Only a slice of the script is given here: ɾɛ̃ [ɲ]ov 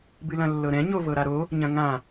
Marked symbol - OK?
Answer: yes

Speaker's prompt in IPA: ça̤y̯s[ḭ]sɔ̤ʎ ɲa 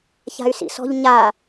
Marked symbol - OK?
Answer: yes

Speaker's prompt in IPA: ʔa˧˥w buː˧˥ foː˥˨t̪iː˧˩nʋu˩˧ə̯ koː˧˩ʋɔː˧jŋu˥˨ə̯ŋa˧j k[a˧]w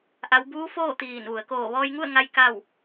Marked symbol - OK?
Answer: no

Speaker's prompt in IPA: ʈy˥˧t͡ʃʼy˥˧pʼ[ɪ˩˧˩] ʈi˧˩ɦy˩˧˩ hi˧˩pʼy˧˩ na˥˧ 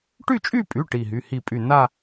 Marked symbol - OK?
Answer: no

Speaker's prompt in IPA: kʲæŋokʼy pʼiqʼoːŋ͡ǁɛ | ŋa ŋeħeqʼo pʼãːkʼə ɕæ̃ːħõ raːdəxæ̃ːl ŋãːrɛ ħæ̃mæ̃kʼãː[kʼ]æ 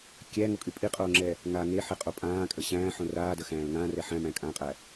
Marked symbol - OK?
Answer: no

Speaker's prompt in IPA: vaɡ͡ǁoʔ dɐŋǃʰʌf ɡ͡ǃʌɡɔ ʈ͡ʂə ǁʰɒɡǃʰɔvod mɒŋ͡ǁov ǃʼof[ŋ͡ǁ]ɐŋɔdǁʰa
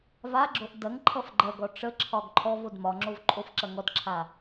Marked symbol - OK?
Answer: no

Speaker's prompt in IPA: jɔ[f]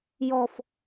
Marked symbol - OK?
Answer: yes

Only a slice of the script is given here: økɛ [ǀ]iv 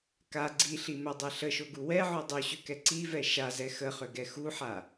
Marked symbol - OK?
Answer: yes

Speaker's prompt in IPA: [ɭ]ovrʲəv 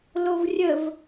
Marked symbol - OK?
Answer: no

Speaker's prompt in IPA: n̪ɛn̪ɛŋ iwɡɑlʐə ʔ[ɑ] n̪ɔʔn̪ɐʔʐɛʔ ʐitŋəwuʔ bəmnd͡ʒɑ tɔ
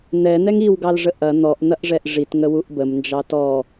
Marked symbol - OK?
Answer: no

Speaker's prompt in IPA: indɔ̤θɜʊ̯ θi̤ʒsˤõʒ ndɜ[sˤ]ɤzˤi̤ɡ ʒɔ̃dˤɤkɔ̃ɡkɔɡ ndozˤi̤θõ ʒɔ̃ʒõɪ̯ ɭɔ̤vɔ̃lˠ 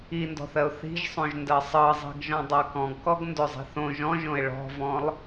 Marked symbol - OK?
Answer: yes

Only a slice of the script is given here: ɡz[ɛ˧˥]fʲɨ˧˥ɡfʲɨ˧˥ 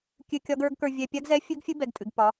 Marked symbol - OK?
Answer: yes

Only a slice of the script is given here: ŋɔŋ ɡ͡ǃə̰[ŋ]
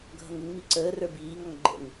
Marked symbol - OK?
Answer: yes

